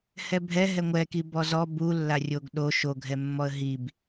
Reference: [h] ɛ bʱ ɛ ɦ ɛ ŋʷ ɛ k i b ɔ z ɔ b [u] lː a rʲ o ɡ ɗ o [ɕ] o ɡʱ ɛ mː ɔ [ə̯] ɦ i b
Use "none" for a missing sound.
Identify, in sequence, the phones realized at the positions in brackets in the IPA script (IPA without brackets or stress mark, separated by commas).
h, u, ʃ, ə̯